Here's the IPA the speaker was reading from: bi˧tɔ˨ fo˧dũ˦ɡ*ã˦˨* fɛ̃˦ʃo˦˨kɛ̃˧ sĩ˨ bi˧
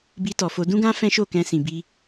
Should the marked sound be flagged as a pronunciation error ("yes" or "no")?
yes